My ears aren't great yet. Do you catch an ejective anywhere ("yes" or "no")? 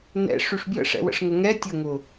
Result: no